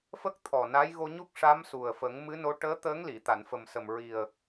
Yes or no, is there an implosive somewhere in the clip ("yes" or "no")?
no